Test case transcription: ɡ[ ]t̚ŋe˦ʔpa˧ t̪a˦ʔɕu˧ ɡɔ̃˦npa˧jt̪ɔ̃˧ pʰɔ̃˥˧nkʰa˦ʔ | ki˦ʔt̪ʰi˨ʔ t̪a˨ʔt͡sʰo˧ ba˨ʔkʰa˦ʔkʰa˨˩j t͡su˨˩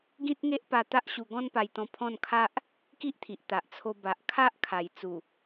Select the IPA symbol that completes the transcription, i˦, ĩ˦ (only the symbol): ĩ˦